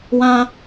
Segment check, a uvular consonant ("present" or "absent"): absent